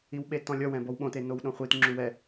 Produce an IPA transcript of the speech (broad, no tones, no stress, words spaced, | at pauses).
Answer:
iwɓetɔ̃lʲɔ wɛ̃bɔwɓõte nowɗõχʷit ŋ͡ǁuwɛ